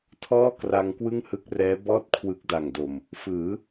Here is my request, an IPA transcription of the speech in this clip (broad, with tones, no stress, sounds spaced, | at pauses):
tʰ ɔː˥˩ k r a˧ ŋ k w ɯ˥˩ ŋ h ɯ˦˥ k̚ r ɛː˦˥ b ɔː˥˩ t̚ kʰ w ɯ˦˥ k̚ d a˨˩ ŋ d o˨˩ m | f ɯː˩˦